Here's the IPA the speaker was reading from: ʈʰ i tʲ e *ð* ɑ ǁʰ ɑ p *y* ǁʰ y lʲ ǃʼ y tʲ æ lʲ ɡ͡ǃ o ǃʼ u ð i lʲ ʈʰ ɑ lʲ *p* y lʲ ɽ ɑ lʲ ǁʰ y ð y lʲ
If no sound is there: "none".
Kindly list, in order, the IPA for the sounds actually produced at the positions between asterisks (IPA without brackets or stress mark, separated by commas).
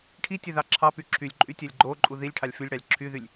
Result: ð, y, f